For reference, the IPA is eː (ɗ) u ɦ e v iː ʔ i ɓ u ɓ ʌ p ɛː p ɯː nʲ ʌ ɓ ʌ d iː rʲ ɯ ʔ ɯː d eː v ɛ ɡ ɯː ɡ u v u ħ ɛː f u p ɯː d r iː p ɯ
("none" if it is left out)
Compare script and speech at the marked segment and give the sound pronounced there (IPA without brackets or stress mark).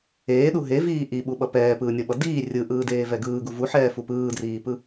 ɗ